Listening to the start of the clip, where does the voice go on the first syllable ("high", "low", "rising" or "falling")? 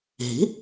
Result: rising